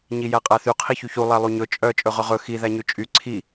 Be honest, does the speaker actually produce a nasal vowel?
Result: no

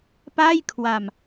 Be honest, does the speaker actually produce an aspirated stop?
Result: yes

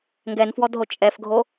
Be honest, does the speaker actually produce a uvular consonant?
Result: no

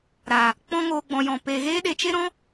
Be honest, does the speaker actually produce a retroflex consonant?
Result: no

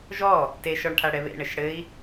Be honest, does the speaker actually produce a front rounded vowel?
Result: no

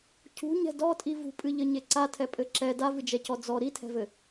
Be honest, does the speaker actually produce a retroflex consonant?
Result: no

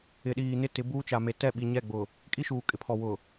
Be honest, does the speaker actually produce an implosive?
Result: yes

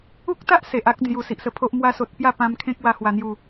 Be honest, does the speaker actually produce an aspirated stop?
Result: yes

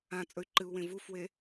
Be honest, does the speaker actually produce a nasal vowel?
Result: yes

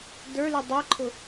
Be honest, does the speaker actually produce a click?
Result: yes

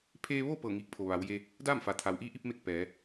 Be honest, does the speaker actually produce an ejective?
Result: no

